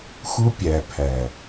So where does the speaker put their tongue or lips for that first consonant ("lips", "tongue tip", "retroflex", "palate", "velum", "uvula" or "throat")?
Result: velum